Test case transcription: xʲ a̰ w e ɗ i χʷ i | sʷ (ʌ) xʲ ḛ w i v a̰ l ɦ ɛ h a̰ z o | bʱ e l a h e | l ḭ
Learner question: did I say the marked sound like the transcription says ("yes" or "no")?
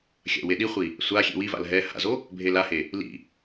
no